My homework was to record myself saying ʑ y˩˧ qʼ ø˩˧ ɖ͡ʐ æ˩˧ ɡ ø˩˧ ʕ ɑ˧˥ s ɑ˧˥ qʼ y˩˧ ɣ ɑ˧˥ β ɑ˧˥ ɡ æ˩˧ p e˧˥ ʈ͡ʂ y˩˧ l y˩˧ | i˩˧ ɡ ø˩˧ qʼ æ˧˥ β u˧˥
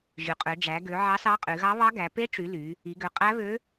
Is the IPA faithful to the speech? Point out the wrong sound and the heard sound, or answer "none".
u˧˥ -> ø˧˥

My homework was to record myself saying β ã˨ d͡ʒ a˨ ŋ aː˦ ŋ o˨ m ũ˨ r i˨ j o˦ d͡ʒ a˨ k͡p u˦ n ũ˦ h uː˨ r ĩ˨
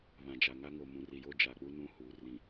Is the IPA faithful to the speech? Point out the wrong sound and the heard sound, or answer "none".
aː˦ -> a˦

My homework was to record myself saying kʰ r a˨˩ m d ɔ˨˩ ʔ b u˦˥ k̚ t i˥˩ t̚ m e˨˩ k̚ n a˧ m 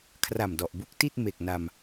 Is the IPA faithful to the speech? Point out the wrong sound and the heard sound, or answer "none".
none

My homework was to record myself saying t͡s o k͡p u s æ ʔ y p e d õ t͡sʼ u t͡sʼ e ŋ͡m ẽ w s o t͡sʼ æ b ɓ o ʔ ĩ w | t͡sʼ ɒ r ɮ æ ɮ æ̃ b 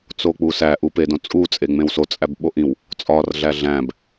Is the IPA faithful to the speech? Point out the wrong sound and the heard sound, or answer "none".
y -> u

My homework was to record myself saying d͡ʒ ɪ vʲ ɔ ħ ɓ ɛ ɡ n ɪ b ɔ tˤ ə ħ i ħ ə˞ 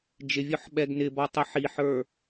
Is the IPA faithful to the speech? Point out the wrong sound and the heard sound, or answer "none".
none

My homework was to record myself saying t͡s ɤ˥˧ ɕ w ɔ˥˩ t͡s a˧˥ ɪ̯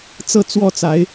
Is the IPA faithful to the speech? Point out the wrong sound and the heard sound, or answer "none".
ɕ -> t͡s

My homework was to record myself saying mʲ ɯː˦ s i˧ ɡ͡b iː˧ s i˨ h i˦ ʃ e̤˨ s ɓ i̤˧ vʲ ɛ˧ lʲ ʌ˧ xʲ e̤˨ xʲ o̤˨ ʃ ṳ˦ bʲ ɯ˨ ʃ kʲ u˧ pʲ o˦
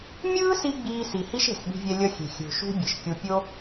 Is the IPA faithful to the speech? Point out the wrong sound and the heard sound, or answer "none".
none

